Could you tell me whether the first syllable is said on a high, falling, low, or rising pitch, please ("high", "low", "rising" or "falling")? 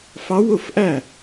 rising